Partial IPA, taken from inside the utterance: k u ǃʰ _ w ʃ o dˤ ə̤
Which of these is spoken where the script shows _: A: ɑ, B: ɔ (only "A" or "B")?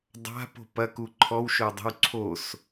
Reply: B